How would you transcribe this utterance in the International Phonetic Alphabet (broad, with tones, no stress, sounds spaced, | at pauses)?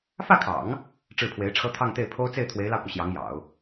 f ä˥˩ kʰ ɑ̰˨˩˦ ŋ | ʈ͡ʂ ɻ̩˥˩ pʰ w e˧˥ ɪ̯ ʈ͡ʂʰ ɤ˥ t̪ʰ ɑ˥˧ ŋ t̪ e˥˩ ɪ̯ pʰ o˥ ʊ̯ t͡s e˥˩ ɪ̯ t̪ʰ w e˧˥ ɪ̯ l ɑ˧ ʊ̯ k u˩ ɕ j ɑ˧˥ ŋ j ɑ̰˨˩˦ ʊ̯